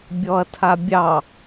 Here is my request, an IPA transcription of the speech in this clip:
bʲ ɔ ɐ̯ tʰ a bʲ ɑ

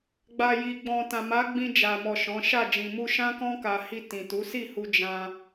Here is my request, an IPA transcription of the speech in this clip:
ɡ͡b a˨ j i˨ ɡ͡b ɔ̃˨ t ã˨ m a˨˦ ɡ͡b ĩ˧ d͡ʒ a˨ m ɔ˨ ʃ ɔ̃˨˦ ʃ a˦˨ d͡ʒ ĩ˨ m u˧ ʃ ã˦ k ɔ̃˦ k a˧ h i˧ t ĩ˨ t u˨˦ s i˦˨ h u˧ d͡ʒ ã˧

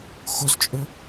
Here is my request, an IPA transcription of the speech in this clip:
x o z t͡ʃʼ ɵ

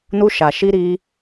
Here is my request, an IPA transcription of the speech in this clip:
n u˧ ʃ a˨ ʃ i˧ ɾ i˧

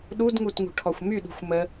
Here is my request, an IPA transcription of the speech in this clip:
ɗ u d ŋ u t ŋ ṳ ʈʰ ɔ xʷ m y ɗ ṳ xʷ m ə

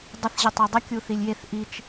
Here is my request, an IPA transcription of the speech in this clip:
dˤ ə θ ʑ ɘ tˤ i dˤ ə kʲ u θ i lʲ j e θ ʔ i t͡ʃ

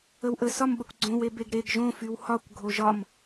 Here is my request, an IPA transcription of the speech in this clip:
ə w ʔ ə s ɒ m ɓ ə kʷ ɡ͡ǀ õ w e b e ɡ ɾ e ɡ ʒ õ f y w h ɒ kʷ ɡʱ o ʒ ɒ m

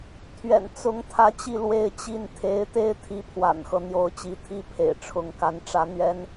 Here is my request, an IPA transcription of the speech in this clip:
t̪ʰ ɥ ɛ̰˨˩ n t͡s ʊ˧˥ ŋ t̪ʰ ä˧˥ t͡ɕ i˥˧ l w e˥˧ ɪ̯ t͡ɕ i˥˩ n t̪ʰ e˧˥ ɪ̯ t̪ e˥ ɪ̯ t̪ʰ i˧˥ pʰ w a̰˨˩ n x ɤ˦ n̪ j o˧˥ ʊ̯ t͡ɕ i˧˥ t̪ʰ i˥ pʰ ḛ˨˩ ɪ̯ ʈ͡ʂʰ ʊ˧˥ ŋ k a˧˥ n ʈ͡ʂ ä˥ n̪ ɥ ɛ˥ n

